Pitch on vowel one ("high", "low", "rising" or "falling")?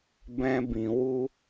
high